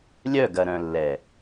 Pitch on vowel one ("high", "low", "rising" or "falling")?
falling